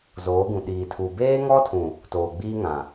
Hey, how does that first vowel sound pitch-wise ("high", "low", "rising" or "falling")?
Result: rising